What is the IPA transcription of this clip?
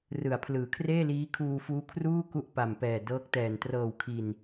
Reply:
rɯ˩˦a̯pʰlɯː˩˦kʰreː˥˩liː˦˥ kʰuː˧fuː˦˥kʰruː˥˩ ku˥˩ʔpa˨˩mpɛː˨˩dɤː˦˥k̚ tɛː˨˩n trɤː˨˩wkʰi˨˩n

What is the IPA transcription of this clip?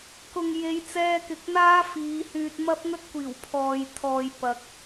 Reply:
kʊ˨ŋ je˨˧jt͡sɛː˧kɪ˨k̚ n̪aː˥fiː˨˧hyː˧t̚ mɐ˥p̚ŋɵ˥t̚kʷiː˨˩w pʰɔː˨jt̪ʰɔː˨jpɐ˨k̚

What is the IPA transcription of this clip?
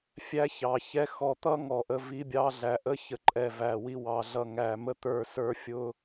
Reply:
fʲæ˦çɑ˨çɛ˦ xɔ˨t̪ʌ˦ ŋɔ˨ʔə˦ vi˦bʲɑ˦ɮæ˨ ʔə˦çə˨ǃʼɛ˨ væ˨wi˦wɑ˨˦ ɮʌ˨ŋæ˨mə˦t̪ə˞˦˨ sə˞˦fʲʊ˦

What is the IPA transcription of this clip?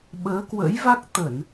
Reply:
ɓəː˨˦kwə̰˧˥jva˦˥k̚ t̪ə˧˩˨n

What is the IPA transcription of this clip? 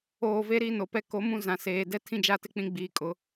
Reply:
oː˨ve˦ ɾi˦no˨pɛ˦ ko˨˦mũ˦ zã˨seː˨ dɛ˦tʰĩ˦d͡ʒa˦˨tɪ˦ k͡pĩ˦ɡ͡biː˨kʼʊ˨˦

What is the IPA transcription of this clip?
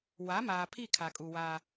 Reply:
wa˨˦maː˨pʰi˦˨ kʰa˨kʼu˨waː˦

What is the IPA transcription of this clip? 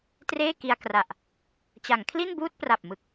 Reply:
treː˥˩ki˧a̯kra˨˩ʔ | t͡ɕa˩˦ŋkʰli˥˩nbuː˥˩t̚ pra˨˩p̚mɯ˨˩k̚

